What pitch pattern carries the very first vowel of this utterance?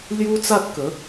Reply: high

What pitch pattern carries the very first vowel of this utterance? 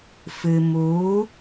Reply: low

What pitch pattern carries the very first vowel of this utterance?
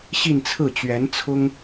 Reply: falling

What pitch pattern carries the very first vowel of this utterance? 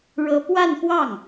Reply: high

